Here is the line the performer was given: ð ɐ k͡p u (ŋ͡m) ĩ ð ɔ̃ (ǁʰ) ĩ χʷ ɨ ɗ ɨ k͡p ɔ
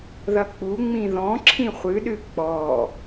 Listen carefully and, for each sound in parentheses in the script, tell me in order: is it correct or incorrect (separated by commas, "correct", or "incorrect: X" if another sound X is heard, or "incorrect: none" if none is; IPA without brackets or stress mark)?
correct, correct